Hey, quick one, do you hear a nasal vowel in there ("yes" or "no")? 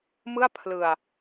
no